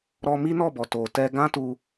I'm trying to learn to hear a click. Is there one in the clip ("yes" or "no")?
no